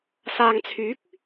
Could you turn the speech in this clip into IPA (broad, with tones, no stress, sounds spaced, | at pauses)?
s aː˨ ŋ t͡sʰ yː˨˥ k̚